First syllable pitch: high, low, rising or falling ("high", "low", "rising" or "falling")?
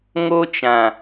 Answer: high